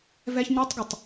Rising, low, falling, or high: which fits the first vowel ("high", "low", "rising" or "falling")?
high